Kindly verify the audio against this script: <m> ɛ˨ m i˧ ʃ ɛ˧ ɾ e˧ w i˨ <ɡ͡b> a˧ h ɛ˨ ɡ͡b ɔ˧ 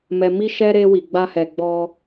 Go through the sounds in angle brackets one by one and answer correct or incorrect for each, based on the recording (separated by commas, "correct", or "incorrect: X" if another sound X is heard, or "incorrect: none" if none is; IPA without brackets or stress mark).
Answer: correct, correct